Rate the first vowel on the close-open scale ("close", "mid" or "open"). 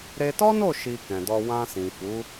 mid